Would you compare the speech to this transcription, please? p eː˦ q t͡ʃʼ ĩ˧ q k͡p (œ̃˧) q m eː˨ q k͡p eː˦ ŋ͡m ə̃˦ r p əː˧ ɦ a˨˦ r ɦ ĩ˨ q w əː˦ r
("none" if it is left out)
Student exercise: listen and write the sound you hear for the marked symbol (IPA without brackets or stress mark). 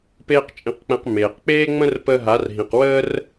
ɛ̃˧